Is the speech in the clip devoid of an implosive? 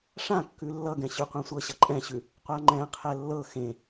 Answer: yes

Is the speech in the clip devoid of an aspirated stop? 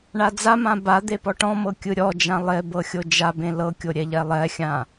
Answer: yes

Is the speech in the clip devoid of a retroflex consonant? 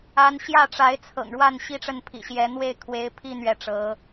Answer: no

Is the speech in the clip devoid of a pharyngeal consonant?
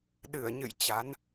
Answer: yes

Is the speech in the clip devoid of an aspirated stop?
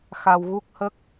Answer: yes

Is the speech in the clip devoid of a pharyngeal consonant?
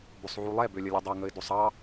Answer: no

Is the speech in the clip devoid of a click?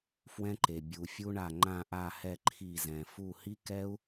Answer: no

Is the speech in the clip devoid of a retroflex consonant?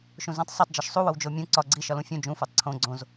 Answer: yes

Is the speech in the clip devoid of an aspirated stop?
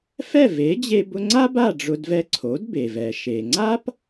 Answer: no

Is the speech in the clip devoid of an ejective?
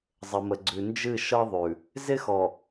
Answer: yes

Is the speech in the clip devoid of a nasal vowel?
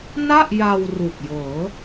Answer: yes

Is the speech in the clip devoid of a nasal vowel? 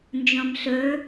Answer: no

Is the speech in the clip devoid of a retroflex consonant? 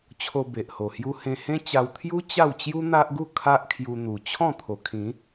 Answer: yes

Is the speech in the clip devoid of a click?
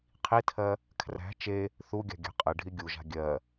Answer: yes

